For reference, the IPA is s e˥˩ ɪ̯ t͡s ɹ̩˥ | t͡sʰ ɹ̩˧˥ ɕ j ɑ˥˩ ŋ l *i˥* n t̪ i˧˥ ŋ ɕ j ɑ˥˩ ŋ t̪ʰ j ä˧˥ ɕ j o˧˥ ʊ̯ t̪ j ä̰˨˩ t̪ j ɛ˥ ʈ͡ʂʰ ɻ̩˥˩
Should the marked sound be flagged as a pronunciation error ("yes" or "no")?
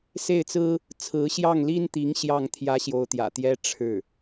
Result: no